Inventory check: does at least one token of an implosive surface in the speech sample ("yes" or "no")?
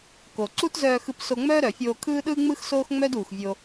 yes